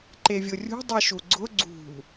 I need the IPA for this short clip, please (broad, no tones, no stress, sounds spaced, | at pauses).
ǃ e vʲ ʊ rʲ ṳ dˤ i ʃ u ɡ͡ǀ ʊ ɡ͡ǀ ṳ